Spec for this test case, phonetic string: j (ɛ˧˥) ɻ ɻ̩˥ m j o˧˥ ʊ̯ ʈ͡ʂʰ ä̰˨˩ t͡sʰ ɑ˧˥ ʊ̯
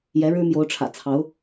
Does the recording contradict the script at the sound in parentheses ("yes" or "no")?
no